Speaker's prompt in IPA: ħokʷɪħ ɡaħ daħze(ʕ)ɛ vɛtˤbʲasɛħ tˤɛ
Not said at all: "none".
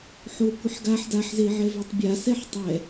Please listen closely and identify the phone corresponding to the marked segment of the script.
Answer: ʕ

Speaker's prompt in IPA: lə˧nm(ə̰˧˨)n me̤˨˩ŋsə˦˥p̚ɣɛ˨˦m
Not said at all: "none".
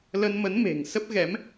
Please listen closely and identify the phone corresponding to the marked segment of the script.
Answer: ə˨˦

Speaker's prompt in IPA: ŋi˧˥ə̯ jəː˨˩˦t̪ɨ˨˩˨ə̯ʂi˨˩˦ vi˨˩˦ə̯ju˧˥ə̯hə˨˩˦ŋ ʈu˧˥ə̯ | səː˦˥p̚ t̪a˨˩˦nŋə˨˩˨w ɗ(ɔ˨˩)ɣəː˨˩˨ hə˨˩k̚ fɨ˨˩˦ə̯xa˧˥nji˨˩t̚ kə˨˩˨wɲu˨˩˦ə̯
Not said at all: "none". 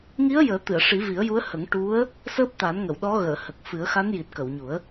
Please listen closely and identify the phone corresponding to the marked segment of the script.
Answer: ɔ˧˥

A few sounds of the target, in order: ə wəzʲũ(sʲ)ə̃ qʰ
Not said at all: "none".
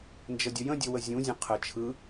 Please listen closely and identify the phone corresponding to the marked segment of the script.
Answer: zʲ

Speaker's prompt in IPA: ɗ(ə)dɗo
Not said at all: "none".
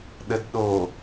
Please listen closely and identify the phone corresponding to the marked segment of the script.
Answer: ə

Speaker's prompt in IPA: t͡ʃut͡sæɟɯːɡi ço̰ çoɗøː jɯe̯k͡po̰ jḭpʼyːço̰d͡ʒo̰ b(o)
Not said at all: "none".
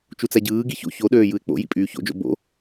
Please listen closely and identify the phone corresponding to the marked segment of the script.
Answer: o̰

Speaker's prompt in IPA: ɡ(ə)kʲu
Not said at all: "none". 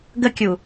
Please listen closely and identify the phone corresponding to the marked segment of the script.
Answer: ə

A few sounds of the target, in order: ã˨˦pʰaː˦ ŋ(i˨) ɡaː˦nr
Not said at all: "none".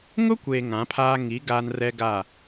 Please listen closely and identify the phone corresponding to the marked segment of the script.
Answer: i˨˦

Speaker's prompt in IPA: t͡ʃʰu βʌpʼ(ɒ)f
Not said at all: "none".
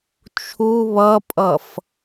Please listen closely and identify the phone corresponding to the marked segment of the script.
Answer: ʌ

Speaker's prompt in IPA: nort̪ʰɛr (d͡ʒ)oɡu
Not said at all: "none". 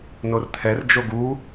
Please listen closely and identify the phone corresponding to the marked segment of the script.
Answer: d͡ʒ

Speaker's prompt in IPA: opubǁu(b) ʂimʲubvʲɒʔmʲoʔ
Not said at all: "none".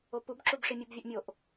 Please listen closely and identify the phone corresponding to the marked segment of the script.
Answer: b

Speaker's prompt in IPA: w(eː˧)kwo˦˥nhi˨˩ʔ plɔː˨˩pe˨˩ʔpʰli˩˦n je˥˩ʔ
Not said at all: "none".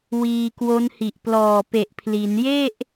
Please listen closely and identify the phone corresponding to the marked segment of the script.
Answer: iː˧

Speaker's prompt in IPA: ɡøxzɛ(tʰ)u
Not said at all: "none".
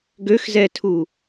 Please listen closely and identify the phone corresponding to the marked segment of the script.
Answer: tʰ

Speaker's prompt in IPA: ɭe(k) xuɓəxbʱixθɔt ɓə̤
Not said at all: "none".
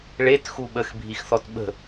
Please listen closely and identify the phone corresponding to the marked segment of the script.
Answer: t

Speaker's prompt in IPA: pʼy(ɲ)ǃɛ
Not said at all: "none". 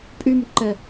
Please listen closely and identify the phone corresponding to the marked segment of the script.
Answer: m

